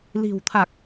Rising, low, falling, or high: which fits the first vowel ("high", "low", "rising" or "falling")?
low